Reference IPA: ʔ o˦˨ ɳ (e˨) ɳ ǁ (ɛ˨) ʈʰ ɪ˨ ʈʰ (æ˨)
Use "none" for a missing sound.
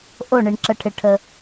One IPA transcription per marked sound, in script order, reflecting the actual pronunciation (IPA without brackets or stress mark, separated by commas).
i˨, ə˨, ə˨